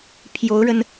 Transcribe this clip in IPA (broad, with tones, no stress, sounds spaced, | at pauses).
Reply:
pʰ j o˧˥ ʊ̯ ɻ ə˧ n